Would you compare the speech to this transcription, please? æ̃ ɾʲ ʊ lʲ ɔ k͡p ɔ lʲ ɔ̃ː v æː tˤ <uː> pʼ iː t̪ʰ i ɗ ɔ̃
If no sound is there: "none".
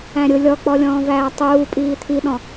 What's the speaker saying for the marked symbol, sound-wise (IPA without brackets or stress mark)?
uː